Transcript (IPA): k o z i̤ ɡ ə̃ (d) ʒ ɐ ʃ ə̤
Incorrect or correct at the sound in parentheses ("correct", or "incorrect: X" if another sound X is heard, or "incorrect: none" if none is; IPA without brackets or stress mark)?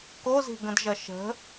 correct